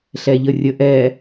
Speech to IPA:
ɬ ɛ ʎ ə rʲ ə ʔ ɛ

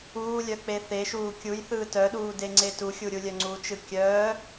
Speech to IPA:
uː lʲ œ k͡p e θ e ʃ uː kʲ u j θ ɯː t œ ɗ uː d e ŋ͡ǀ e t u xʲ u ɾʲ u lʲ œ ŋ͡ǀ u t͡ʃ ɯ kʲ œː

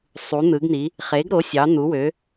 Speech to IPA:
sˤ u˩˥ n̪ ɯ˩˥ ɡ n̪ i˩˥ | χ e˩˥ ɡ ɾ o˩˥ sʲ ɑ˩˥ n̪ u˩˥ w ø˩˥

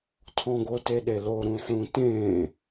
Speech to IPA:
tʰ ɔ̃ ɡ o t e ɗ e l o ɾ ũ ħ ũ t ẽ

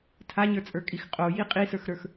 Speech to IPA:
tʰ a ɲ ə˞ t͡sʼ ə˞ kʼ i x qʼ o j i qʼ i s ə˞ x ɾ ə˞ x

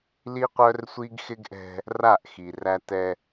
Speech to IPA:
l i˦ qʷ œ˦ r sʷ i˦ ɡ x ɪ˦ ɡ ʔ ɛ̤˦ | r a˦˨ ʔ x i˨ r æ˦ t ɛ˦

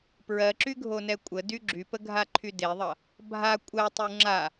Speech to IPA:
p ɹ ɜ ǁ y ɡʱ o n ɛ kʷʼ ə d y ɡ͡ǁ y p ə ɡʱ a ǃʰ y d e ðˤ ʌ | bʱ a kʷʼ ɜ tˤ u ŋ͡ǁ a

